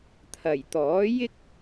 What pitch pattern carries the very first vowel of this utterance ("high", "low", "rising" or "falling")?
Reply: low